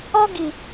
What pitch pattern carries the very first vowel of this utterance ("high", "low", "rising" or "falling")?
high